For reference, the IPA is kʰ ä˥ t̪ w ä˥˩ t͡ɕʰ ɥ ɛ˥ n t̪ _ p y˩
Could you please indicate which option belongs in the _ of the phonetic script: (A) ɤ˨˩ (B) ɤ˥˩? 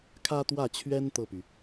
B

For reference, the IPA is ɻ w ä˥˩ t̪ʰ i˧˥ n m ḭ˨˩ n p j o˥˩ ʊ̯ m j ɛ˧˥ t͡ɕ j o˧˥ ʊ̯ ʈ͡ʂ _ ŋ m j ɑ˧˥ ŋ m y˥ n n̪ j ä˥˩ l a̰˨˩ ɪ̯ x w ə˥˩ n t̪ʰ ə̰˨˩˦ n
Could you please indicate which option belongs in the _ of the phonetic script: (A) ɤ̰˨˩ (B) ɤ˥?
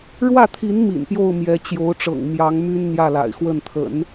A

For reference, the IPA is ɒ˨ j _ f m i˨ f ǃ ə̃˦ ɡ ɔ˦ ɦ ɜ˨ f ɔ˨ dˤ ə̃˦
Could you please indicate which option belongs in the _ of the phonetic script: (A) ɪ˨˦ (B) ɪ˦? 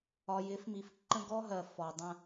A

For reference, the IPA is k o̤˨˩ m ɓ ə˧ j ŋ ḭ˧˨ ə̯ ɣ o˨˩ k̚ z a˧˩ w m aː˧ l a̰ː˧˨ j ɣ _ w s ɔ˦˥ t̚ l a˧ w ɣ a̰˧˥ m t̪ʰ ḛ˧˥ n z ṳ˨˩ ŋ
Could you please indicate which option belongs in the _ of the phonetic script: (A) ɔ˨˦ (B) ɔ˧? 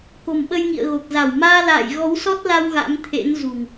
A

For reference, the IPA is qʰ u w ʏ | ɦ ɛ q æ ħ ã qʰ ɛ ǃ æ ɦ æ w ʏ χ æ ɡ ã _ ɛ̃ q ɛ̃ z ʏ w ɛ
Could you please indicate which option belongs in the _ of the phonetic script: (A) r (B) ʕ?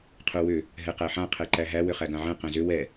B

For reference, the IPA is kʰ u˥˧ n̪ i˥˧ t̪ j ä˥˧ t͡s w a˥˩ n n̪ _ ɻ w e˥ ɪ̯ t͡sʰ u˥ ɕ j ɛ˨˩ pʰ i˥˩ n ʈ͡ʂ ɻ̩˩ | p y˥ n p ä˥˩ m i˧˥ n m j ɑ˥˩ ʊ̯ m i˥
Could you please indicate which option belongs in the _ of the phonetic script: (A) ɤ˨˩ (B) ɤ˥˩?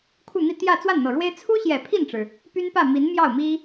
A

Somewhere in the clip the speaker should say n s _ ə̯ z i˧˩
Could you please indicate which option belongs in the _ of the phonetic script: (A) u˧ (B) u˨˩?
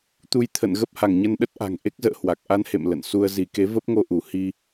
A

